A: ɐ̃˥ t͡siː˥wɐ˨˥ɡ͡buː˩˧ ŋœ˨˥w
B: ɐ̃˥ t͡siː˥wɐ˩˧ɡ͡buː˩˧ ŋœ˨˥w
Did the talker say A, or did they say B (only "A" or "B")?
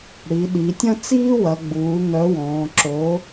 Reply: B